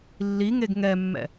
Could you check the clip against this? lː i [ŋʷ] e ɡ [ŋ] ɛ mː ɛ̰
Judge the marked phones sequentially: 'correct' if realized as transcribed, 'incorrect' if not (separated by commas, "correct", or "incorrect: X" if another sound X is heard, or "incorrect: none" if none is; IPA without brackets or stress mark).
incorrect: ŋ, correct